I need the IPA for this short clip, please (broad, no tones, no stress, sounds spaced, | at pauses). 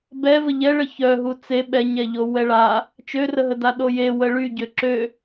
b ɛ v ə ʎ ɛ ɭ ə ç œ ɦ u t͡s e ɓ ɛ ɲ ɛ ʎ o w ɛ ɭ a | t͡ʃ ø r ə ɦ ə d a ɗ o j e w ə ɭ y ɟ ø ǁ ø